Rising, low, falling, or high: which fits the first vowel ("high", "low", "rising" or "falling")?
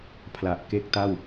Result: low